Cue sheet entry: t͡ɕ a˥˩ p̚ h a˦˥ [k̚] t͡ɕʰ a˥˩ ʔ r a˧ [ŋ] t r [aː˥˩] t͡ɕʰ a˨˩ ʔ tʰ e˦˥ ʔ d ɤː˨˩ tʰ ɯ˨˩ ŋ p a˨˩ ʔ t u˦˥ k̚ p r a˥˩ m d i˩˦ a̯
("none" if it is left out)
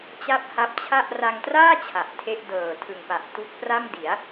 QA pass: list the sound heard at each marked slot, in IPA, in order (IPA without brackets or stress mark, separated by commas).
p̚, ŋ, aː˥˩